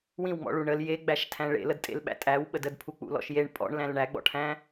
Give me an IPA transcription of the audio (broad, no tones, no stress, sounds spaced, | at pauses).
w ĩ w ŋ͡m ɔ̰ ɭ u ɳ ə l j e ɡ͡b æ ʃ tʰ æ̃ ɭ ḛ l ə d tʼ ḛ l ɓ æ̰ tʼ æ w ɓ ə d ə d pʰ u k͡p ṵ l ɔ̰ ʃ j e ɳ pʼ ɔ̰ ɳ l æ̃ l ɳ æ ɡ͡b ɔ̰ ʈʰ æ̃